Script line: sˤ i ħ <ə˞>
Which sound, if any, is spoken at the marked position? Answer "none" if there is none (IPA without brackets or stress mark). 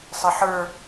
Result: ə˞